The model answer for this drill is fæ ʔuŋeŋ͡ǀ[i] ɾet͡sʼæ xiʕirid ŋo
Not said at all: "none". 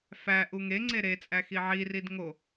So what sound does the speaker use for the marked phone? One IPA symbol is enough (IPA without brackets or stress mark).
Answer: e